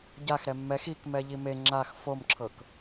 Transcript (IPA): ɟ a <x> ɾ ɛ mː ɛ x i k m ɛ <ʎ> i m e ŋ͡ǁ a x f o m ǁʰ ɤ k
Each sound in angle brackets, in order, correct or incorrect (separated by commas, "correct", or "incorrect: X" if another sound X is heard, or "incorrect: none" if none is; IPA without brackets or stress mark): correct, correct